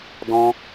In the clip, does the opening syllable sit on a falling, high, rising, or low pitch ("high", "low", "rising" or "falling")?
high